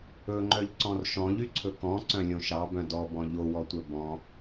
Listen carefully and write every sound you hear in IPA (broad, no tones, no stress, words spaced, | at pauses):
ɵŋ͡ǃœʎǀɔ̃r ʃɔ̃ʎyǀʰɵ kɔ̃ǀœ̃lʲõ ʃɑbœ̃ dɔbɔ̃ ʎowɔtʷœ bɔ̃